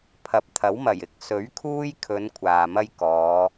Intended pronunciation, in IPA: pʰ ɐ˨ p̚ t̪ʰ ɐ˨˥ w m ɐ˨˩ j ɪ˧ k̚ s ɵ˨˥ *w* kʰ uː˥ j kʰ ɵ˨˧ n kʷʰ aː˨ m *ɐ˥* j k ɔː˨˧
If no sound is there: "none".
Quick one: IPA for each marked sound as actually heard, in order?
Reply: ɥ, ɐ˥

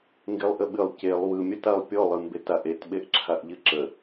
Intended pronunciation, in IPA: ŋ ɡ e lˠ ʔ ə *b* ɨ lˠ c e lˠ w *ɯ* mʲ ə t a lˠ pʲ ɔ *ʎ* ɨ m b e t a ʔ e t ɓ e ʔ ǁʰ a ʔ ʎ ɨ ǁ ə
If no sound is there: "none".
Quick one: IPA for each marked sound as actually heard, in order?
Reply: ɓ, ɯ, lˠ

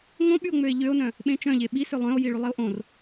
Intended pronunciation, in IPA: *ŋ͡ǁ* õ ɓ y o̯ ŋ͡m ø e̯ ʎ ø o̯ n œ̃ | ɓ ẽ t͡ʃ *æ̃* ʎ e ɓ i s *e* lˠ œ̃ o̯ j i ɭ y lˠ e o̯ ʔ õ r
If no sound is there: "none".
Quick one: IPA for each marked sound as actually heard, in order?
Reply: ŋ, œ̃, ø

